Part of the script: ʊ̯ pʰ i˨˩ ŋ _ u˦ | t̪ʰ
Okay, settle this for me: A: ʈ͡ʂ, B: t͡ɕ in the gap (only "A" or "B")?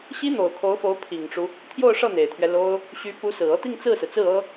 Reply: A